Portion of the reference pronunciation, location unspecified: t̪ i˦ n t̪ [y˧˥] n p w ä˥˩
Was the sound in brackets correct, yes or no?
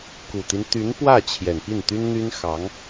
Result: yes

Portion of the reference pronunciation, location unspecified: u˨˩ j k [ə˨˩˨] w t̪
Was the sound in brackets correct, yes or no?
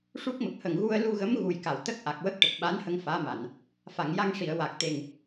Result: no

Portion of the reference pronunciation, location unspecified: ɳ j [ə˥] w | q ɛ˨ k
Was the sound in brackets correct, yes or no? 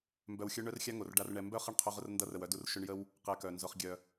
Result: yes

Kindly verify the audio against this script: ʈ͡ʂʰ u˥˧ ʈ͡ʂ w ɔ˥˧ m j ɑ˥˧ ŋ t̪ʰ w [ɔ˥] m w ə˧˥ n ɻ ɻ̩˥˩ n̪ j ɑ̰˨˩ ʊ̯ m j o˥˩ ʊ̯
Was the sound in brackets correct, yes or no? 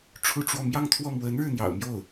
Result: no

